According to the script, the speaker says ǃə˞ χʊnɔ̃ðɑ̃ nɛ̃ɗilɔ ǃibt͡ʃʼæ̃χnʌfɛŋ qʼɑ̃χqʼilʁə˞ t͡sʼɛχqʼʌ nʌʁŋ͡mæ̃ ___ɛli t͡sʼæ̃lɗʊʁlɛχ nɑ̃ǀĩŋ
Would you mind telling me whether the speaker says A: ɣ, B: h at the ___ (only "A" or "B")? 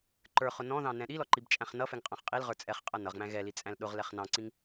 A